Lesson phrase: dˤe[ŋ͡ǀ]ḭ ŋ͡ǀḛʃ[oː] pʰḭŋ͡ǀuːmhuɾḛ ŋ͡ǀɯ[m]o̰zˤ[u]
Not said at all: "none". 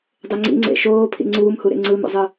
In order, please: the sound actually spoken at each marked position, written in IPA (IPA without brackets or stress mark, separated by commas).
ŋ͡ǀ, oː, m, ɯ